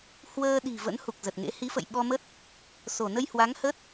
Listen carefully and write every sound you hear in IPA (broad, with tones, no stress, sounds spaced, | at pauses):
h w əː˧ ɗ i̤˨˩ v ə̰˧˥ n h u˨˩ k̚ z ə˨˩ t̚ ŋ ḛ˧˥ h i˨˦ f ə̰˧˨ j ɓ ɔ˧ m ə˦˥ t̚ | s o˧˩ n ə˧ j h w a˨˦ ŋ h ə˦˥ t̚